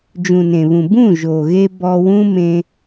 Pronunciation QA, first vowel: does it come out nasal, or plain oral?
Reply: nasal